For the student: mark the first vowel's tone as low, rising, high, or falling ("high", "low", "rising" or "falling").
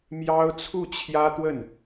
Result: high